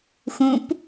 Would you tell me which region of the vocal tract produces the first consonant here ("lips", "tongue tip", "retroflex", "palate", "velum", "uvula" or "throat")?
velum